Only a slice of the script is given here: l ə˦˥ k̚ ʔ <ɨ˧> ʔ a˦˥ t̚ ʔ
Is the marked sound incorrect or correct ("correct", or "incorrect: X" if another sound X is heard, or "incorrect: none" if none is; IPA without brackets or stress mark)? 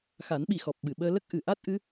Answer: incorrect: ɨ˨˩˨